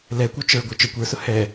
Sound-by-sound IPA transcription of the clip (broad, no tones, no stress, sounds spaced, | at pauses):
l ɛ kʷ œ t͡ʃ ə˞ ɡʷ œ t͡ʃ œ kʷ ə˞ s ʊ h ɛ